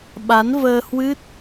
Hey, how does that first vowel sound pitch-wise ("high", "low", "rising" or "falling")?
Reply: rising